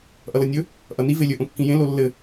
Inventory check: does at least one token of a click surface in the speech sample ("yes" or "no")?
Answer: no